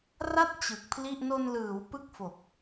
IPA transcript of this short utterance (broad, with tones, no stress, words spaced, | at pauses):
ra˦˥t̚ t͡ɕɯ˨˩k̚pʰli˥˩ʔ no˧nlɯː˩˦w pɯ˥˩k̚fo˨˩k̚